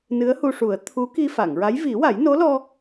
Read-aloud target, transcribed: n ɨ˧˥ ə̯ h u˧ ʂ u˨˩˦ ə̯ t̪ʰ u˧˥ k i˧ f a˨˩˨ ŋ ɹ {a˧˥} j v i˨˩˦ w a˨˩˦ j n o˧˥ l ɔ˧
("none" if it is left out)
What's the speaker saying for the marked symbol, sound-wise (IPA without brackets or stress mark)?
a˧˥